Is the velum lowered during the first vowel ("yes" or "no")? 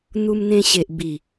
no